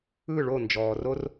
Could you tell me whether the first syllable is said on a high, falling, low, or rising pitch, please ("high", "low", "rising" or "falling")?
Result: falling